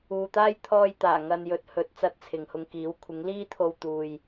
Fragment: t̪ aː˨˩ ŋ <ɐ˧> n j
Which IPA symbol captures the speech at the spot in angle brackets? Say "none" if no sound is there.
ɐ˧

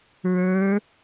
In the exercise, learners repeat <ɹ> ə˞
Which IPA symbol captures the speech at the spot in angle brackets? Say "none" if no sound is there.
ɹ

